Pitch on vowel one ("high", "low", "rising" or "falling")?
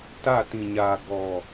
falling